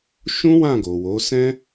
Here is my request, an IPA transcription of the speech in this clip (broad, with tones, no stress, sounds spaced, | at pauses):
ʃ ũ˦ w ã˦˨ ɡ o˨ w o˨˦ s ɛ̃˦